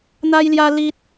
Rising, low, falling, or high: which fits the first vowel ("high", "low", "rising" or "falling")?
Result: high